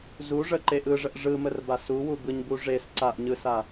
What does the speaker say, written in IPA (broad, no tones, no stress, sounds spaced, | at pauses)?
z u ʐ ə ǃ e ʔ ɯ ʐ ə ʔ ʐ ɯ m ə r b a s u w u b ɯ ɲ b u ʐ e s ǀ a ʔ ɲ ɯ s a